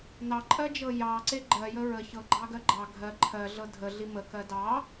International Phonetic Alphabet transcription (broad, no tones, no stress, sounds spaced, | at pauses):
n ɑ ǃʼ ɜ d͡ʒ ɤ j ɑ ǀ e ɡ͡ǃ ɜ j ə ɹ ə ç ɤ ɡ͡ǃ ɑ ɡ ɜ ɡ͡ǃ ɑ ɡʱ ɜ ǃʰ ɜ ɮ ɤ dʱ ə ɮ i m ə k ɜ d ɑ